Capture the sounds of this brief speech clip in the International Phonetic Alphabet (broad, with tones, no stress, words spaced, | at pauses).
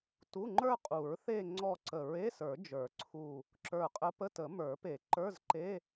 tu˧˥˧ŋ͡ǃə˞˥˧qʼu˨˩˦ɹ θe˥˧ ŋ͡ǀɔ˥˧ǀə˧˩ ɹe˧˥˧sə˞˨˩˦ d͡ʒə˞˨˩˦ǀʰu˧˩ | ǁə˞˧˩qʼə˧˥ pə˧˥˧tə˨˩˦ mə˞˨˩˦pe˨˩˦ǃə˞˧˥˧zǃe˧˥˧